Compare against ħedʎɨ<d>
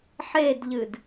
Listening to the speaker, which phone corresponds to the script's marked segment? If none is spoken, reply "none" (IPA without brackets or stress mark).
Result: d